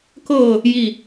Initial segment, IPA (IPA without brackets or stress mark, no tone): k